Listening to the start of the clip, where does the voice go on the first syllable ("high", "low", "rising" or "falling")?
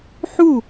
falling